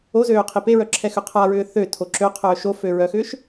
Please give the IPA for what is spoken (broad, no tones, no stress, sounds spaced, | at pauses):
o z øː qʰ i p e ɹ œ ǁʰ ɛ x ʏ qʰ a ɹ ʏː θ ø tʰ o ǁ ø qʰ œː ʃ o f ø ɹ œ x ʏː ʃ